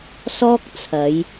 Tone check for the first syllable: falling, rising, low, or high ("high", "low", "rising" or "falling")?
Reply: high